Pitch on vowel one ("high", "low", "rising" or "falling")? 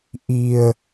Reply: low